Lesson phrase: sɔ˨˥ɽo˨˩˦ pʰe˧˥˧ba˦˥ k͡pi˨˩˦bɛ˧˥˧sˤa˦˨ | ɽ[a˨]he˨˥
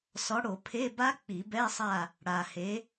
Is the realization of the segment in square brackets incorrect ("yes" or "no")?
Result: no